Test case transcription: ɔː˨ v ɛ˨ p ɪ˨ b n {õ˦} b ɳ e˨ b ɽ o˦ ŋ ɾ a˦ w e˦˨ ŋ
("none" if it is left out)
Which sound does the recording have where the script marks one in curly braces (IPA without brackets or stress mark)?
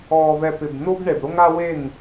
o˦